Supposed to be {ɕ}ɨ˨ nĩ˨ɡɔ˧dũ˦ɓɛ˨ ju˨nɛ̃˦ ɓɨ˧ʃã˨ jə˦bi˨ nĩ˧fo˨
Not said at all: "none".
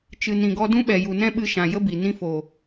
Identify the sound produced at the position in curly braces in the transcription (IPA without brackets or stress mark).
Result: t͡ʃ